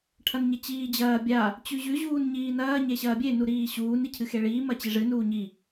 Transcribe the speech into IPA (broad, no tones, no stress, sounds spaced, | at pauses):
ʈʰ ɐ n ɲ e t͡ɕ iː d͡ʑ ɐː bʲ a | t͡ɕ ʉ ʑ ʉ ʑ uː n ɲ iː n ɐː ɲ e ɕ ɐː bʲ e n u ɾ iː ɕ uː n i cʰ ɨ x e ɭ iː m ɐ t͡ɕ i ʐ ɨ n uː ɲ i